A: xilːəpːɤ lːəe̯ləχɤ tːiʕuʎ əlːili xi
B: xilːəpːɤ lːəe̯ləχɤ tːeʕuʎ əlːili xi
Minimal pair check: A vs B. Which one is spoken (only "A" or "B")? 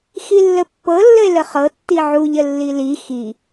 A